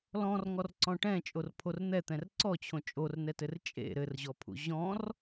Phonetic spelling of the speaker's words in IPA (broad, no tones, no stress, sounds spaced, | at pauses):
l ɔ̃ r ŋ ɔ r ǀ ɔ̃ ʈ ɛ̃ t͡ʃʼ o r pʰ o r n̪ ɛ t̪ ɛ̃ r ǀ ɔ t͡ɕʰ õ t͡ʃʼ o r n ɛ t ɘ r t͡ʃʼ ḛ ɾ ɘ r ʑ ɔ pʰ ṵ ʑ ɔ̃ r